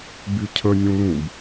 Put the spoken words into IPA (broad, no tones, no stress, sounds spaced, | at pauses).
b y cʰ ə nʲ ũ l ũ b